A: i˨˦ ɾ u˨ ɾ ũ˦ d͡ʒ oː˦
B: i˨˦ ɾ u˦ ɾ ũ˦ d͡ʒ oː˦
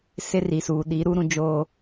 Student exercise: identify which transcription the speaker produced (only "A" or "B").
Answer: B